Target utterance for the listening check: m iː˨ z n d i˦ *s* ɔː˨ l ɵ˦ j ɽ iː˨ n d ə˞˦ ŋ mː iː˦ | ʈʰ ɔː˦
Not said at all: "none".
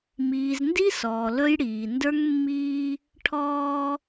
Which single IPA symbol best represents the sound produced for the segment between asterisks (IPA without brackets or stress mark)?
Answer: s